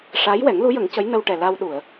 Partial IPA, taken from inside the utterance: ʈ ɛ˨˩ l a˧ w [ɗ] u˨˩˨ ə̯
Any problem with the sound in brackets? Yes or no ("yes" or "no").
no